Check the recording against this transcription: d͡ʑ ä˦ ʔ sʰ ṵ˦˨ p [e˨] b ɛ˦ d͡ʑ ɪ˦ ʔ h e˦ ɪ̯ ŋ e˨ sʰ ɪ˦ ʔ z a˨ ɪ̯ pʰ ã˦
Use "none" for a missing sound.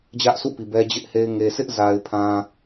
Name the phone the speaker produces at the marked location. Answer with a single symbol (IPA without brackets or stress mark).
i˨